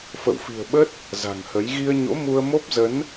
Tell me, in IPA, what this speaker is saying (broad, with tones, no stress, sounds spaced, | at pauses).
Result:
f ə̰˧˨ w f i̤˨˩ ə̯ ɓ ə˦˥ t̚ | z a̤˨˩ ŋ h ə˨˦ j ɣ i˧ ə̯ ɲ o̰˧˥ m u˧ ə̯ m o˦˥ p̚ z ə˨˦ n